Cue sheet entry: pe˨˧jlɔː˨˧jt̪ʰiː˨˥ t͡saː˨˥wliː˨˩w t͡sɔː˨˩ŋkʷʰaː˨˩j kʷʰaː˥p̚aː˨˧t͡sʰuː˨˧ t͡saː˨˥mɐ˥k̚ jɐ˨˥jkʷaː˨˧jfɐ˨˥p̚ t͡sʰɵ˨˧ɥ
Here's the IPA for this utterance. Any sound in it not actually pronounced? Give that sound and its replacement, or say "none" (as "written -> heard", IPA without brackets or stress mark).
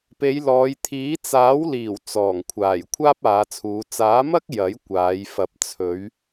none